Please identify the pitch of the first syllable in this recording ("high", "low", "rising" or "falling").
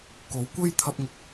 rising